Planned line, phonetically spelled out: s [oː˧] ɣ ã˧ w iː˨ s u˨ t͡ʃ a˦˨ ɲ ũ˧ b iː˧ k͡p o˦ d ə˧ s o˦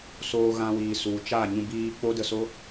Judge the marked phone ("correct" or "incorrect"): correct